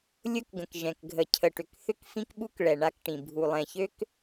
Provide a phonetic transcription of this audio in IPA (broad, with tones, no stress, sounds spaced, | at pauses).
lʲ ʊ˦ k ɡ ə̃˨ k ʒ ɛ̃˨ k ɡʱ ə˨ cʰ ə˨ ʈ ʏ˨ k θ ʏ˦ k f ĩ˦ k ɓ u˦ k ɭ ɛ˨ ɳ a˦ k ʈ ĩ˨ bʱ u˨ lˠ ɛ̃˨ ç ø˦ k